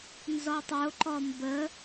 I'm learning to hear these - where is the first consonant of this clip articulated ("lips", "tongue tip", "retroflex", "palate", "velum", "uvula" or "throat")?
tongue tip